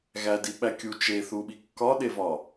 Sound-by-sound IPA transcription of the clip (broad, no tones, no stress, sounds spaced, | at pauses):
ɣ æ d i ɓ æ kʲ u t͡ʃ e θ u ɓ i kː ɒ ɗ e v ɒ